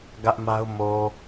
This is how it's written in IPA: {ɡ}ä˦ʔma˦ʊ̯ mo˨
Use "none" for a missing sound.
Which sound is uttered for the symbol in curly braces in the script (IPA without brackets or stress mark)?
ɡ